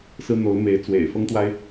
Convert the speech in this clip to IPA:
s ɹ̩˥ n̪ o˧˥ ʊ̯ m e˧˥ ɪ̯ t͡s w ḛ˨˩ ɪ̯ f ɤ˥ ŋ t̪ w a˥ ɪ̯

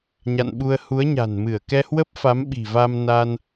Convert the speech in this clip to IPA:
ɲ a̰˧˨ n ɓ u˧ ə̯ h u˨˦ ə̯ ɲ a̤˨˩ n m ɨ˧˩ ə̯ k ɛ˧ h w ə˦˥ p̚ f a˨˦ m ɓ i̤˨˩ v a˧ m n a˧ n

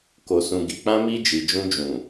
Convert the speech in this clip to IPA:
k o˨ s ũ˨ ɡ i˨ k͡p ã˧ m i˧ d͡ʒ i˨ d͡ʒ ũ˧ d͡ʒ ũ˨

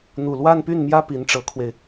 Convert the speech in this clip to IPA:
n̪ u˨˩ l w a˥˧ n p y˥˩ n m j ä˥ p i˧˥ n ʈ͡ʂ ɤ˧˥ kʰ w e˧ ɪ̯

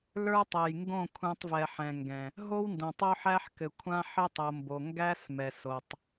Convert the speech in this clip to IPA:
l ə˞˦ tˤ ɛ˨ j ŋ ɡ õ˦˨ kʷʰ æ̃˦ tˤ v ɛ˨ ħ ɛ̃˨ ŋ ɡ ɛ̃˨ | ɦ o˦ w n d õ˨ tˤ o˦ ħ æ˦ ħ k ɘ˨ kʷʰ ã˦ ħ ɘ˦ tˤ o˨ m b o˨ ŋ ɡ æ˦ s m ɛ˨ s o˨ tˤ

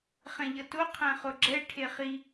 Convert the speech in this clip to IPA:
χ ɛ̃ ʎ ʌ t o qʰ ɛ̃ χ o ɡ͡ǁ ɛ ʈʰ e χ i

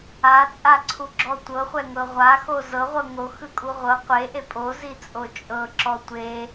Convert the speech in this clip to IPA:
a t͡sʼ a ǀʰ u ɡ͡ǁ ɔ tʷ ɤ χʷ ɛ ŋ ɤ ʁʷ a x o z ɤ ʁʷ ɤ ŋ o x ɯ kʼ u ʁʷ ɤ qʷ e ʔ e pʼ o z i t͡sʼ o t͡ʃʼ ɤ ǁ ɔ tʷ e

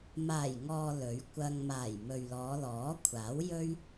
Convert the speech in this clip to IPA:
m aː˨˩ j ŋ ɔː˨ l ɵ˨˥ ɥ kʷ ɐ˧ ŋ m aː˨˩ j m ɵ˨ ɥ l ɔː˨˧ l ɔː˨˥ kʷʰ aː˨˥ w j ɵ˥ ɥ

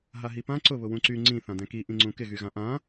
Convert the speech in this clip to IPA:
ɦ a ɦ i p ã ǀ ʊ β ʊ w ũ ǀ y ŋ͡ǀ ĩ θ ã d ɛ̃ k i ʔ ĩ ŋ͡ǀ ũ k ɪ ɣ y ɣ ã ʔ ã

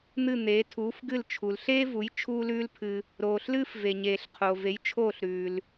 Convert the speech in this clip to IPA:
n̪ ɨ˥˩ n̪ eː˩˥ tʰ uː˩˥ f ɡ ɨ˥˩ l t͡ʃʰ u˩ l ɬ eː˥ v u˩˥ j t͡ʃʰ uː˥ l ʉː˥ l pʰ ɨ˧ | ɾ oː˩ ɬ l ɨː˥ f v e˩ ɲ eː˩ ɬ qʰ oː˩ v e˩˥ j t͡ʃʰ oː˥˩ ɬ ɾ ʉː˩ l

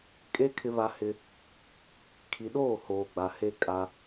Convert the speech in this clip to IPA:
kʼ e˦ kʰ ɪ˦ β a˦ h ɪ˦ | kʰ i˨ ɗ oː˦˨ h oː˨ ɡ͡b a˨ h e˦ kʼ a˦

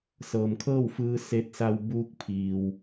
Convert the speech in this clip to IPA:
s ɤː˩ m kʰ ɤː˥˨ w f ɯː˧ s e˧ t̚ s a˧ w b uː˧˥ k̚ pʰ iː˩ w

